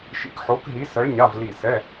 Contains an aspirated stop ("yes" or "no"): no